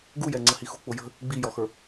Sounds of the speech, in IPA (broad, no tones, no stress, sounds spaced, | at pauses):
ɡ u j ɛ ŋ͡ǀ ə h i x ṳ k͡p ʊ j ə̤ | ɡ͡b i j ɔ x ə˞